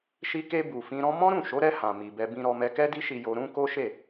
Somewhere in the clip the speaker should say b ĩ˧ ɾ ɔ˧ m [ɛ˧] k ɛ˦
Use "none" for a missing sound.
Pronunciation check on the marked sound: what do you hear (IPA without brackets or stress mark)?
ɛ˧